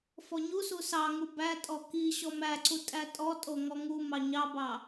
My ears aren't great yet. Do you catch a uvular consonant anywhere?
no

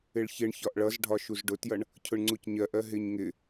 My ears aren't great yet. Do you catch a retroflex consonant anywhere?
yes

